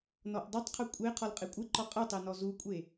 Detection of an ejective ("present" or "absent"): present